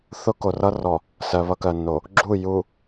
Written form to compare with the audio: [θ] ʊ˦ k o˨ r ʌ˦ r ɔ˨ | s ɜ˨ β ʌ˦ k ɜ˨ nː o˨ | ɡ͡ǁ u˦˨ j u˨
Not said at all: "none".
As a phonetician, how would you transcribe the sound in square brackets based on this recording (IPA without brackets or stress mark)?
θ